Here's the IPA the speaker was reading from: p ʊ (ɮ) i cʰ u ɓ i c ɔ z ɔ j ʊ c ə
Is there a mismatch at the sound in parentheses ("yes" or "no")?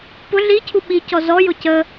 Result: no